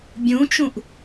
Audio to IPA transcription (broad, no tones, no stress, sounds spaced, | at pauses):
bʲ ũ t͡ʃ ũ ʔ